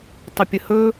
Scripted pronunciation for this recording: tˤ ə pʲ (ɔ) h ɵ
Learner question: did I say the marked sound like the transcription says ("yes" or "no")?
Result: no